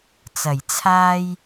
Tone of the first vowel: low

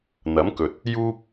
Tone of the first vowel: rising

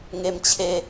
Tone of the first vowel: low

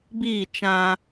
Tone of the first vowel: falling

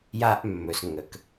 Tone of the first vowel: high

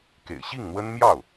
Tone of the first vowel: low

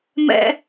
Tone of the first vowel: high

